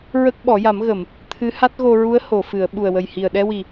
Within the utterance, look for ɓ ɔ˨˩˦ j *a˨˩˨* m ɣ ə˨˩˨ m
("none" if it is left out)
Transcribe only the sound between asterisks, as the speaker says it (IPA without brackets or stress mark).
a˨˩˦